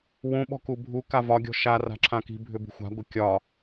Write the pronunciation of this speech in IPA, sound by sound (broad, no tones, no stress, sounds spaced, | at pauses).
w ũ ɓ ɔ̤ k u bʱ u k a v ɒ ɡʲ ɔ̤ ʃ a r a̤ ǁʰ ã k i̤ bʱ ʏ b ṳ xʷ a̤ ɡʷ e kʲ ɒ